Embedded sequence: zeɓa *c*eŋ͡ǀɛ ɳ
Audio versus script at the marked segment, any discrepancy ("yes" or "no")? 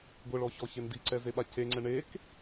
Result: no